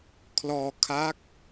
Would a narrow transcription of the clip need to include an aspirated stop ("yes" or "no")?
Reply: yes